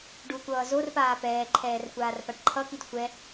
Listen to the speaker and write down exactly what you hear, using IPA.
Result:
ɖ u kʷ ʌː z o r p aː p ɛː ǃʰ ɛː r kʷ aː r p a ɖ ǃʰ ʌ k i d xʷ ɛ

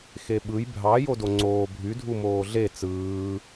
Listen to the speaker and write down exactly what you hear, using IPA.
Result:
x e ɓ ɯ j bʱ ɑ j o d o ŋ͡ǀ oː bʱ y dʱ u m oː ɮ e t͡s ɯː

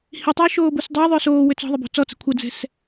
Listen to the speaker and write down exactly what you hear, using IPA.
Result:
h i tˤ ʏː ʃ oː b u s dˤ ʏː ðˤ ʏː s oː w ʏ t͡s ɔ̤ ðˤ ə b o̤ t͡s ɔ t͡s ə̤ kʷʰ ə d͡z ɛ̤ s

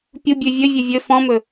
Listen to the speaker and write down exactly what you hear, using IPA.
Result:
pʲ u bʲ ʉ vʲ ɵ vʲ ɵ vʲ ɵ f ɔ̃ m ɵ

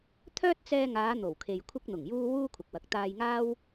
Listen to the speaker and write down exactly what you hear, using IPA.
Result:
t̪ʰ œː˥ t̚ t͡s ɛː˧ ŋ aː˨˧ n̪ o˨˩ w kʰ e˨ j kʷʰ ɪ˧ k̚ n̪ ʊ˨˩ ŋ j uː˧ w uː˥ kʷʰ ɐ˨ k̚ w ɐ˨ k̚ t̪ aː˧ j ŋ aː˥ w

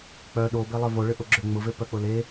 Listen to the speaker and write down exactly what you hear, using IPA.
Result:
k͡p œ ɗ o b e lˠ œ v o ɭ ʏ ʔ ʊ ɡ͡ǁ ʏ ŋ͡m ʊ v e p œ k͡p ʊ l e

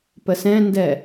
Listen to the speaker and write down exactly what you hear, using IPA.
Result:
p ə s ɛ̃ n d ɛ

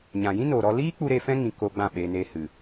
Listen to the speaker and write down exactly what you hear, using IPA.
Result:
ɲ ã˨ j ĩ˦ n oː˨ ɾ ɔ˧ l iː˦ k͡p u˦ ɾ e˧ f ɛ̃˦ ŋ ĩ˨ k o˧ ɡ͡b ã˦˨ ɓ eː˧ n eː˧ h ɨ˨

